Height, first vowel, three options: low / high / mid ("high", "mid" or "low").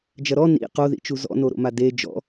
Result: low